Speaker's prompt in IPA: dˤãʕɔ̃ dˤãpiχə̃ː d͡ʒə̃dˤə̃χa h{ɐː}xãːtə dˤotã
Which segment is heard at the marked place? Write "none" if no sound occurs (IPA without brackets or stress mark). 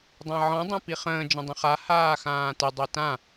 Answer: aː